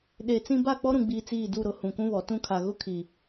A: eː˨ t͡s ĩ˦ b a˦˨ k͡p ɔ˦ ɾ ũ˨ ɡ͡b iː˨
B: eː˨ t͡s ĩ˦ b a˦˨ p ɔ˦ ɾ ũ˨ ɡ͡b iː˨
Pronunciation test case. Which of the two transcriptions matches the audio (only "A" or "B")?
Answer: A